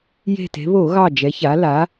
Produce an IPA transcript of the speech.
j e̤˧˩ t e̤˩˧ β o˧˩˧ ɣ ɑ˧˩ d͡ʒ ɛ˩˧ ç a˩˧ l a˩˧

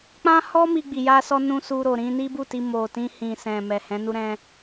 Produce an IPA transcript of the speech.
k͡p ã˦ h ɔ˦ m i˧ ɡ͡b i˨ j a˧ s ɔ˧ n ũ˦ s u˧ ɾ o˨ ɾ ĩ˧ n i˦ b u˦˨ t i˧ m o˨ t ĩ˧ h ĩ˨ s ɛ̃˨ m ɛ˨ h ɛ̃˨˦ n u˦ ɾ ɛ̃˦

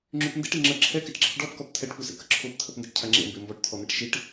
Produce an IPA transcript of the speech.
ŋ͡ǁ y p n d ḛ ʈ i ŋ͡ǁ ə ǁʰ ɛ k ɛ ʈ ǁ ə̰ ʈ ɖ ɔ p k ɔ p t̪ʰ ɛ ʈ p u s ḛ k ə ǁʰ o p t̪ʰ ə p n d ɛ ʈ cʰ a ŋ͡ǁ ḛ m b e m b ɔ ʈ t̪ʰ ɔ n̪ ɛ ʈ ʃ i ʈ

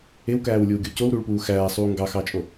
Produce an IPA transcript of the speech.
e w k æː w lʲ uː ɡʲ o c o w ɾ u ɭ p uː x æː sˤ uː ŋ ɡ ɑ x ɑ t͡ʃʼ o

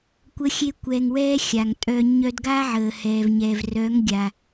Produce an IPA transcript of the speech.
kʷ ə˦ xʲ e˦ kʷ ɛ˧ ŋ w ɛː˦ xʲ a˨ ŋ tʼ œ˧ ɲ œ˧ d ɡ a˦ ʕ əː˨ h ɛ˨ v ɲ ɛ˨ v r œ˨˦ ŋ ɡʲ a˨

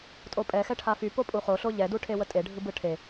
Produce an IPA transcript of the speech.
tʼ o pʼ ɛ x ɛ ʈʰ a f y p o pʼ u χ o ɬ o ʎ ɛ d u ʈʰ e w ə tʼ e ɖʱ ɯ b ɯ ʈʰ e

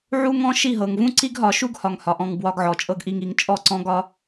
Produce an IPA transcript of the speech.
ʕ u˦ ŋ ɔ̃˦ ʃ i˦˨ ɦ ɤ˨ ŋ v ũ˦ ǀ i˦ ɡ ɦ ɒ˨˦ ʃ u˦ ɡ h ɒ˧ ŋ h ɒ˨ ʔ ɔ̃˧ ŋ b w ɒ˧ ɡ ʕ ɔ˨ t͡ʃʼ ɤ˧ ɡ ʔ i˧ ŋ i˧ ŋ t͡ʃʼ ɔ˦˨ ǀ ɔ̃˦ ɡ ɒ˦

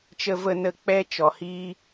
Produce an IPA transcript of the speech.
t͡ʃ ə˧ v ə˧ n ə˧ k͡p ɛ˦ t͡ʃ ɔ˨ h iː˦

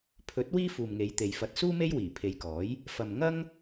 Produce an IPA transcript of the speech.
pʰ ɵ˨˥ t̚ w iː˥ f uː˨ m ŋ e˨˧ j t̪ e˨ j f ɐ˧ t̚ s uː˥ m e˥ j w iː˨˩ pʰ e˨˧ j k ɔː˨˥ j | f ɐ˨ m ŋ ɐ˥ ŋ

